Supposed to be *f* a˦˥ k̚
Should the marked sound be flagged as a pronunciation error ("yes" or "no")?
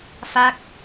no